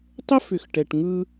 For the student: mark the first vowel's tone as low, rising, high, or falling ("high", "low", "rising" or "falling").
high